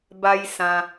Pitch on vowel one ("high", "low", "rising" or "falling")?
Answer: high